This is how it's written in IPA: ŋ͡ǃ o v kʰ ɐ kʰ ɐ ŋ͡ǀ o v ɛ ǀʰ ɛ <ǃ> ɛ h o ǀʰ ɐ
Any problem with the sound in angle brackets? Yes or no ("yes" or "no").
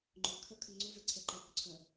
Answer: no